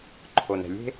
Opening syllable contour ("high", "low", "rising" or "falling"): low